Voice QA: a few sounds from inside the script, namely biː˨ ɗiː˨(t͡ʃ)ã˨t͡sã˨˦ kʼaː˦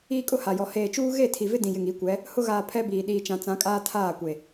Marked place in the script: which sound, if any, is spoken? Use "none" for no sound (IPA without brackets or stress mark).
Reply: t͡ʃ